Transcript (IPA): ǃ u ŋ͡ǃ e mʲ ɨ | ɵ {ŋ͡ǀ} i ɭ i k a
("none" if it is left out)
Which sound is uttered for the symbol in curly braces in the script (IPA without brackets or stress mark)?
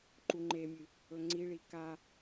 ŋ͡ǀ